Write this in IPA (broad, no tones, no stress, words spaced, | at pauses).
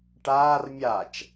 ʈaːr mʲat͡ʃ